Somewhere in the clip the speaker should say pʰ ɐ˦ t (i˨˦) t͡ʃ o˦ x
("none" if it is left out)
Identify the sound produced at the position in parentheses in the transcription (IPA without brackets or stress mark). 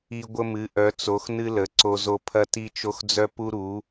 i˦